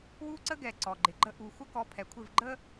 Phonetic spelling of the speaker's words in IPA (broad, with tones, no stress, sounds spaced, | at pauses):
w u˦ ǀ ə˦ ɡ ɛ˨ ǀ ɔ˨ ɡ͡ǃ ɪ˨ ɡ͡ǃ ə˦ ʔ u˨ xʷ ə˦ k ɔ˨˦ pʰ ɛ˨ kʷʰ ɪ˦˨ v ɡ͡ǃ ə˦